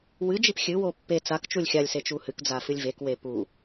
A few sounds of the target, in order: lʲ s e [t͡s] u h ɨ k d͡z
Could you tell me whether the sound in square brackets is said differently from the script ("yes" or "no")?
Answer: yes